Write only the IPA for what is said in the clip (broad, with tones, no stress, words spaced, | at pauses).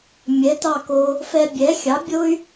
mʲɛ˩˥tɑ˥˩ko˧ | fɛ˧bʲɛ˩˥ xʲɑ˩˥bʲo˥y̯